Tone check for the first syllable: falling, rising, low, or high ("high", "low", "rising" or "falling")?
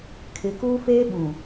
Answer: low